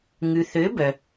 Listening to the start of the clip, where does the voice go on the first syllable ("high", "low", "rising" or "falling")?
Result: low